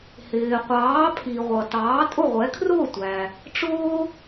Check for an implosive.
absent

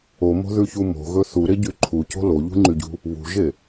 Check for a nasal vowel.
absent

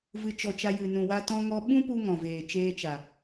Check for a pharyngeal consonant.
absent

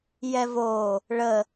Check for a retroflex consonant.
present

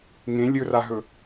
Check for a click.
absent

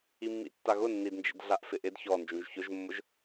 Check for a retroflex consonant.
absent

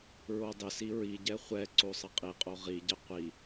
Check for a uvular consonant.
present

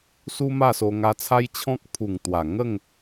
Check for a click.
absent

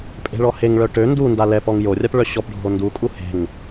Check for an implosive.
absent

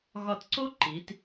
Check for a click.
present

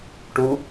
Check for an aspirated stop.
absent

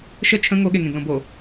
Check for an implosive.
present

